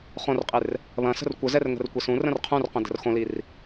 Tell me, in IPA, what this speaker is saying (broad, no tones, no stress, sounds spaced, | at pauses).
χ õ r qʼ e r | β ɐ̃ s ə̤ r kʷ ə z ɛ r ŋ ə̤ r kʷ e s ũ r ə̃ r qʰ ũ r q ə̃ d ə̤ r x õ l i r